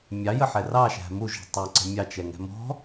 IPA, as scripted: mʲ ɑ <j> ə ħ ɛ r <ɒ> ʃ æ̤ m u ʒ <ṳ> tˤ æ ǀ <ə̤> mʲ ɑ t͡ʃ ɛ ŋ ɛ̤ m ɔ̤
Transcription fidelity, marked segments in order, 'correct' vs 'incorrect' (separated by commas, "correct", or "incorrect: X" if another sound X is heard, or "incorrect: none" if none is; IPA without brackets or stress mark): correct, incorrect: ɑ, correct, correct